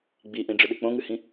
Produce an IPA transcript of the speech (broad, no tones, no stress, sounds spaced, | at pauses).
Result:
ɡ͡b i ʔ ĩ ɖ͡ʐ ɨ ɗ ɨ k͡p õ ŋ ɨ h ĩ